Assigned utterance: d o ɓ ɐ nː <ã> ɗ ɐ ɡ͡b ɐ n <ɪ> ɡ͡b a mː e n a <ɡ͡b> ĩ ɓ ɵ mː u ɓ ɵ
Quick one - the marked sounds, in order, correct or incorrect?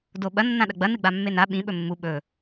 correct, incorrect: ɨ, incorrect: ɓ

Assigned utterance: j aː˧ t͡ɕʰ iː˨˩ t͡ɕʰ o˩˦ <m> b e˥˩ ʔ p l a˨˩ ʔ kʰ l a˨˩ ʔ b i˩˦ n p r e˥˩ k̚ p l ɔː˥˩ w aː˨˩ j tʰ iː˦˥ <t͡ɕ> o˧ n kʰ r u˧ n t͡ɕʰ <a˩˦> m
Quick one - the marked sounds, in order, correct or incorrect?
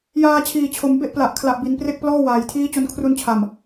correct, correct, incorrect: a˨˩

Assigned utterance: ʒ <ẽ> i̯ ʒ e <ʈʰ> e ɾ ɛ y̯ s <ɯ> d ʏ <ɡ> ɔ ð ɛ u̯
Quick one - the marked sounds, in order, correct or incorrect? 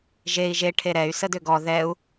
incorrect: e, correct, incorrect: ə, correct

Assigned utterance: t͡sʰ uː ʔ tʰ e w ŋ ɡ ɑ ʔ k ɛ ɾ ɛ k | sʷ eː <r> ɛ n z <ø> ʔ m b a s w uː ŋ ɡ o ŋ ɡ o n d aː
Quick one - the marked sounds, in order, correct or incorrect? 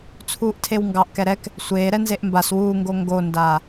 incorrect: ɾ, incorrect: e

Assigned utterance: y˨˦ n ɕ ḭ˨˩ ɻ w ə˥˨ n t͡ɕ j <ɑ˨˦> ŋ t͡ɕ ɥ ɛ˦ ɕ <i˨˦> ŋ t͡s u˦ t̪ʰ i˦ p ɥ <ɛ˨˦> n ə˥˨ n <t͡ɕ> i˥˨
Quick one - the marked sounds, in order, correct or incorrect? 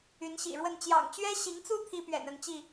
incorrect: ɑ̰˨˩, correct, incorrect: ɛ̰˨˩, correct

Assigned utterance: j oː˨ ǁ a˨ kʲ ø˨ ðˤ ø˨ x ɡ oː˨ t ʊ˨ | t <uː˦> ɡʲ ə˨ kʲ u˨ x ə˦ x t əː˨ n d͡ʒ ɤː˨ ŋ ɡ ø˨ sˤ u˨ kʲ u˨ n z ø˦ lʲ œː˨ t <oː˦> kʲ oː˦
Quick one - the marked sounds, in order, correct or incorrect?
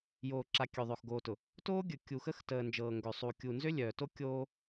incorrect: oː˦, incorrect: o˦

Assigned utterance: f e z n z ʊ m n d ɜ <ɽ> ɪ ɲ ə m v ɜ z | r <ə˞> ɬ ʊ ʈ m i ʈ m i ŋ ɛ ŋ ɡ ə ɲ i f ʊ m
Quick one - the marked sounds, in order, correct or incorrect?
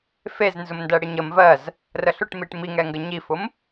correct, incorrect: ə

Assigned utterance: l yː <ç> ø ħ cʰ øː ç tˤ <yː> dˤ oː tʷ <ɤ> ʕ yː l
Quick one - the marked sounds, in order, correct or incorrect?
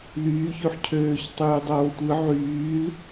correct, correct, incorrect: ɯ

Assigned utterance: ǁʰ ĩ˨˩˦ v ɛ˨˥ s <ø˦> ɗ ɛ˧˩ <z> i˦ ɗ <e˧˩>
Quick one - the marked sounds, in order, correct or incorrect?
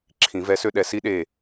correct, incorrect: s, correct

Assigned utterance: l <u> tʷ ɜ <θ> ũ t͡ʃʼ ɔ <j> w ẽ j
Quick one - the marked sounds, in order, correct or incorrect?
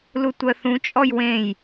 correct, correct, correct

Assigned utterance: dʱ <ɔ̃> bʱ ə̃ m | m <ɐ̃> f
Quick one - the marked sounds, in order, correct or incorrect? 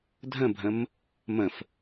incorrect: ə̃, incorrect: ə̃

